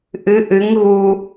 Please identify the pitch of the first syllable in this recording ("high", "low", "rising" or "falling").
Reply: rising